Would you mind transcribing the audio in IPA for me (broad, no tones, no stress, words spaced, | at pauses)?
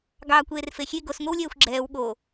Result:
ɡɑːkʷeːrfexʲe ɡos ŋʷewlʲɛːxʷɡ͡ǁɛːw ɠo